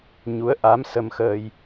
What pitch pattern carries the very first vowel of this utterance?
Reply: rising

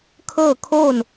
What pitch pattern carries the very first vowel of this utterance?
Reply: falling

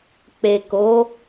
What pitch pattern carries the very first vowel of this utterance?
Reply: low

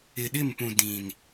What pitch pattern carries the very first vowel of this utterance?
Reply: low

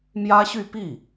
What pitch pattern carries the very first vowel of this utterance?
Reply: high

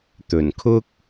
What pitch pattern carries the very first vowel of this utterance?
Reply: low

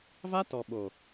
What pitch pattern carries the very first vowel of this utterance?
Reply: high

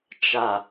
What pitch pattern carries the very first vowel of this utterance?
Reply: low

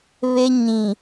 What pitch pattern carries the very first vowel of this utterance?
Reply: high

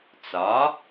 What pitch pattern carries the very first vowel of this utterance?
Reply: rising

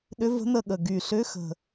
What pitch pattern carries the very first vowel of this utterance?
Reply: rising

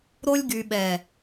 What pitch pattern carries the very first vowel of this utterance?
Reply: high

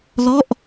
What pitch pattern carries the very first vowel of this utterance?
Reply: falling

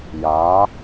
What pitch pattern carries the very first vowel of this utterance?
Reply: rising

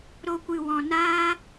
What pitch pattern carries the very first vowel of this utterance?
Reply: low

